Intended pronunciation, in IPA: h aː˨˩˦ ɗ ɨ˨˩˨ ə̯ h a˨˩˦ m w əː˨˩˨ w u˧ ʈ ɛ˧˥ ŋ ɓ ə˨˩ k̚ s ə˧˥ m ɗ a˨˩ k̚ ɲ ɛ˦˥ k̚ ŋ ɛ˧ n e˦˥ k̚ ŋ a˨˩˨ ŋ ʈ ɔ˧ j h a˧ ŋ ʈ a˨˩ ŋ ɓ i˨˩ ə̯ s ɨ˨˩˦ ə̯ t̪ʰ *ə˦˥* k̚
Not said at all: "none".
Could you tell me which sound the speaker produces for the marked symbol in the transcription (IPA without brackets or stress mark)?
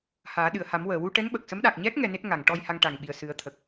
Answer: ə˨˩